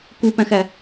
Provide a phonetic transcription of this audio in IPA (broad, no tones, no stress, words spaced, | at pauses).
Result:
kupæ̃xæ